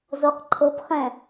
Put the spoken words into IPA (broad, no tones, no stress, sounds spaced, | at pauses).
z ɤ χ ǃʰ ɤ p χ ɛ̃